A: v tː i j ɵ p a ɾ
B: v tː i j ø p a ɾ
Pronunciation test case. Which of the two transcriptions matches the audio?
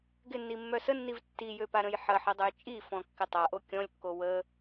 B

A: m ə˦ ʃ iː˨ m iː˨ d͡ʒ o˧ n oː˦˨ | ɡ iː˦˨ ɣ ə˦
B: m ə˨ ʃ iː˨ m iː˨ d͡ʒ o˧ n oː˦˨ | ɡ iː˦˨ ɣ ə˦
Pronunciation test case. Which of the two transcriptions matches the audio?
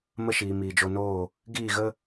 A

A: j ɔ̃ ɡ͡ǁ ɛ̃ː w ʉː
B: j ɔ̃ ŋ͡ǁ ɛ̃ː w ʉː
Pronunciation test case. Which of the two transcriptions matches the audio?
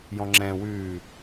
B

